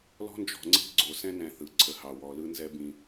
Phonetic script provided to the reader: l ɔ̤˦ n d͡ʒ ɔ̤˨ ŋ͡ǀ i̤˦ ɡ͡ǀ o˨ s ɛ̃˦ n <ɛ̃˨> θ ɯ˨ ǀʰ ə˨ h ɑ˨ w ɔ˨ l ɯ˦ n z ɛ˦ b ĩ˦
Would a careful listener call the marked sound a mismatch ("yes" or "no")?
no